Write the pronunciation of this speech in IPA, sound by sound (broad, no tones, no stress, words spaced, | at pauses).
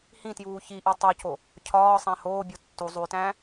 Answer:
hĩtjuː çiʔi tˤoco | cʰɒːsˤæ̃ hoːbʲo tːu zˤuy̯tæ̃ː